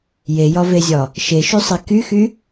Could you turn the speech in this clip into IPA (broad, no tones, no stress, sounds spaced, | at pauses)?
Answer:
j e j ɒ v e zʲ ɒ | ʃ e ʃ y sˤ e k y x y